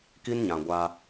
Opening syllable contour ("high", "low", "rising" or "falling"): high